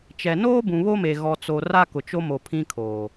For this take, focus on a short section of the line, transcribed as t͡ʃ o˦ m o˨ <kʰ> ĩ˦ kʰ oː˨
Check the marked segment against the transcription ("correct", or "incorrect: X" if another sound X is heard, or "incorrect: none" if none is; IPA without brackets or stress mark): incorrect: pʰ